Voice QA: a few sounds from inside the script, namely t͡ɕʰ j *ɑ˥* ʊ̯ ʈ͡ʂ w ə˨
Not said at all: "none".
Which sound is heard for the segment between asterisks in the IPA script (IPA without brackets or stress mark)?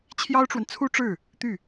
ɑ˥